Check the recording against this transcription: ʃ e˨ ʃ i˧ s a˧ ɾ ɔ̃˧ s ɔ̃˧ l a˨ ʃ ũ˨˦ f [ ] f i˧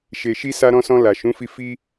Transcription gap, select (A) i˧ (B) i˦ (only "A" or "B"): A